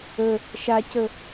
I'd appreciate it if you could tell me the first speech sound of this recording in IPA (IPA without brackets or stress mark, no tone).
ə